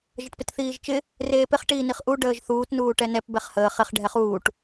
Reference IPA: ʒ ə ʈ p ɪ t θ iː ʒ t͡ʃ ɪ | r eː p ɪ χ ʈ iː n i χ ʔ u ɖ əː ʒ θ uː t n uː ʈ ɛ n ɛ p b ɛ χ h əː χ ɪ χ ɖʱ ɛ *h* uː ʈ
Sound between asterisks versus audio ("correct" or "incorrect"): incorrect